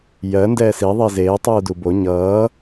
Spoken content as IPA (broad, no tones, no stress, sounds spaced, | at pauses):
j ɜ n d ɛː s i ðˤ i z eː tˤ uː d u b o ɲ ʌː